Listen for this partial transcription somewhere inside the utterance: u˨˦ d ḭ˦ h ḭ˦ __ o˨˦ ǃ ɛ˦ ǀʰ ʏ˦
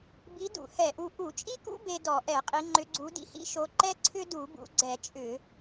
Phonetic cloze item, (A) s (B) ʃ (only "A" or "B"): B